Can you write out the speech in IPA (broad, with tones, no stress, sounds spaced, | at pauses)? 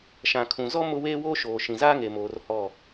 ʃ ã˨ kʰ ũ˨ z ɔ˦ m ʊ˦ w eː˦ w oː˦ ʃ oː˨ ʃ ĩ˨ z aː˦ ŋ e˨ m oː˨ r h ɔ˦˨